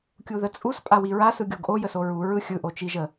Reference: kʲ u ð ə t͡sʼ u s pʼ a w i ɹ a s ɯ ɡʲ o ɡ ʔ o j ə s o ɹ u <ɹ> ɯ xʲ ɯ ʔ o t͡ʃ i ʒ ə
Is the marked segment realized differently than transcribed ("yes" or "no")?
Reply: no